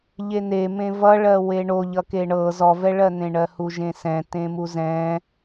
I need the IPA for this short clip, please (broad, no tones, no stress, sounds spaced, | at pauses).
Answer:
ʎ e n̪ e m ẽ v ʌ ɭ ɜ w e ɳ o ʎ ʌ k e ɳ ɤ z ɔ v ɛ ɭ ɜ n̪ ẽ ɳ ɜ h u ʒ ẽ s ɛ̃ t ẽ m u z ɛ̃